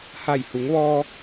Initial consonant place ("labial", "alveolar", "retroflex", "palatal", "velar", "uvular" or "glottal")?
glottal